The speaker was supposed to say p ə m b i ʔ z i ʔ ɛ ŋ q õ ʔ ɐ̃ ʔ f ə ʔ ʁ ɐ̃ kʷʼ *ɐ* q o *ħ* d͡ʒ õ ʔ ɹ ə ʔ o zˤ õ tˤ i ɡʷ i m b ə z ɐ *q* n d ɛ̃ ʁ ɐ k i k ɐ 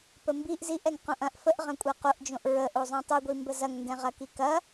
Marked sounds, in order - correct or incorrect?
correct, incorrect, incorrect

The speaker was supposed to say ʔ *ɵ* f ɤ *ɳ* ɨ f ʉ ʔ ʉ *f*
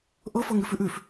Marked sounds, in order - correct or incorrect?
incorrect, incorrect, correct

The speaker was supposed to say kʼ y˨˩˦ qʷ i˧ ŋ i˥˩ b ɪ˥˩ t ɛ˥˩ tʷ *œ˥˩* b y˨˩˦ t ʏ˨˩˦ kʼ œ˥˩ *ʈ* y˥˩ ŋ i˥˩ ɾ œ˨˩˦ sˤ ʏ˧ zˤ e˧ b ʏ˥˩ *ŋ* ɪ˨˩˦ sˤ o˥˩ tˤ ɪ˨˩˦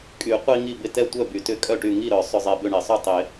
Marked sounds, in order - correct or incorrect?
correct, correct, incorrect

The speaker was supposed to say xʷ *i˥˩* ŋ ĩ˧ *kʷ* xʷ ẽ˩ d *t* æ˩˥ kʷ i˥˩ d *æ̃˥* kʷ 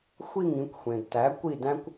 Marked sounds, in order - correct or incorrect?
correct, correct, correct, correct

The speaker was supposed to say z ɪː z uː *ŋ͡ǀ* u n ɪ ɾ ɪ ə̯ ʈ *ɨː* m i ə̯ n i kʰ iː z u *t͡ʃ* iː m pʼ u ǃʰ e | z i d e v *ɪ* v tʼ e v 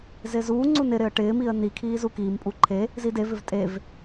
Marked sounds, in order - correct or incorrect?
correct, incorrect, incorrect, correct

